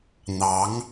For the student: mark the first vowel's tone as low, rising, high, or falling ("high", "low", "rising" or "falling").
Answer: rising